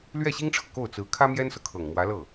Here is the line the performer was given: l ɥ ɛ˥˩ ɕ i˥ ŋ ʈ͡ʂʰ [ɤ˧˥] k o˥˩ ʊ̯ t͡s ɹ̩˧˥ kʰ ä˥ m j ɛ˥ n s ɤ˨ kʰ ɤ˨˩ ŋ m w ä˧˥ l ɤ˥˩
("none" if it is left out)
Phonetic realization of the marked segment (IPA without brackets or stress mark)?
ɤ˨